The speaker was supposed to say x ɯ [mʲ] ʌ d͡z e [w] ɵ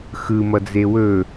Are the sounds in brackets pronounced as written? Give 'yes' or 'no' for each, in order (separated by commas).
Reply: no, yes